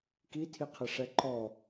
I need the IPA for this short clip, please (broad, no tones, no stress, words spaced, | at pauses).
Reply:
kitʰiqʰɪʂɛ ǃɔ